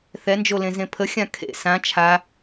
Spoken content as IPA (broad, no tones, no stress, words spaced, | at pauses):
θɛnd͡ʒolẽ zẽpʰəxʲã kʰḛ sã t͡ʃʰa